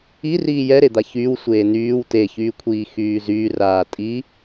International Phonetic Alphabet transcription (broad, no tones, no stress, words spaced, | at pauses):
iriː jɛɾed̪a çyːwsʷeː nyːw teçyːkʷʰiːxyː zyːraː tʼi